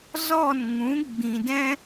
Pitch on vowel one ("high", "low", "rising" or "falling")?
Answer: falling